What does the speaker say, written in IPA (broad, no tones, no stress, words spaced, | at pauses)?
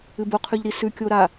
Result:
ɨboqʰʉʎɾi sʉ kʲoɾa